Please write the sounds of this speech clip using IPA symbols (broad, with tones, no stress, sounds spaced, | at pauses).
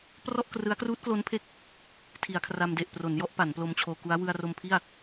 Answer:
p r ɔ˥˩ ʔ k r ɯ˦˥ a̯ k r uː˦˥ t̚ k l o˦˥ n pʰ e˦˥ k̚ | tʰ i˩˦ a̯ kʰ r a˧ m d e˨˩ ʔ p r o˩˦ n j ɔ˥˩ ʔ p a˩˦ n p l o˧ m t͡ɕʰ oː˧ k u˦˥ a̯ w ɯ˧ a̯ r o˧ m pʰ i˥˩ a̯